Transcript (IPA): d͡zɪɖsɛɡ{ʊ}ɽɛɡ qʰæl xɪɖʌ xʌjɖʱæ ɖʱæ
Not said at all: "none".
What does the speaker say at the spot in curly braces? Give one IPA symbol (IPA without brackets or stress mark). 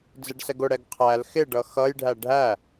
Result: ʊ